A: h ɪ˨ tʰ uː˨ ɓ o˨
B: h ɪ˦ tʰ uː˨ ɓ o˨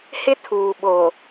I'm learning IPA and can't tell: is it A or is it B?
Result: B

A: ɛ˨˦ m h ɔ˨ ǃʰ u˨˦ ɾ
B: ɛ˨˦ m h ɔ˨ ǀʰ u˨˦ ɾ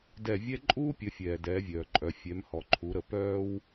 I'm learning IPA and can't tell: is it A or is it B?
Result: A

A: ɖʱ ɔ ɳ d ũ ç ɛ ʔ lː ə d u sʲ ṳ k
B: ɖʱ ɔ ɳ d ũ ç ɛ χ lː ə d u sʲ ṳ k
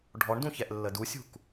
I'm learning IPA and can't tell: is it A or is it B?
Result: A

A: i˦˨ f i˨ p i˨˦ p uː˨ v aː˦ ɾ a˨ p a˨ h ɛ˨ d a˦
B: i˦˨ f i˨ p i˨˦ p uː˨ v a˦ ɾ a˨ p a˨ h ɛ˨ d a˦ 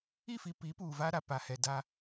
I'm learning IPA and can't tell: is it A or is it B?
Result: B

